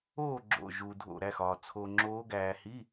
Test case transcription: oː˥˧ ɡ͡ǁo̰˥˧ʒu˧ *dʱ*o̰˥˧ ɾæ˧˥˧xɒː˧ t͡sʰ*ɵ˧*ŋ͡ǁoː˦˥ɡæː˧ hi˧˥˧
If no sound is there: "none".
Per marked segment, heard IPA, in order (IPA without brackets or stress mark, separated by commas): dʱ, o˧